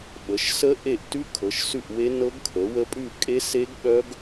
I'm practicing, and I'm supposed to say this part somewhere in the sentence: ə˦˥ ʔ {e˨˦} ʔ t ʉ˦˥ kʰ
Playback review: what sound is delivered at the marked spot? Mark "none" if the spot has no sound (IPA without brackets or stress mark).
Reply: e˦˨